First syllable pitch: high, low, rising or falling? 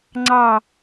falling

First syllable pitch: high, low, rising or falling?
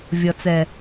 low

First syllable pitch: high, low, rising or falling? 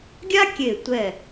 high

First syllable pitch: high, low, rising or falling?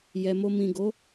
low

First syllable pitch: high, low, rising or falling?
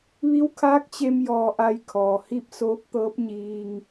rising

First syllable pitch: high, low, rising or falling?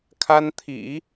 high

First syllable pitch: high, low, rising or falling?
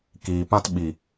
low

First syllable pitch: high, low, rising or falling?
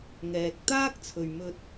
low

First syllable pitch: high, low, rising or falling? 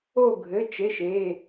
falling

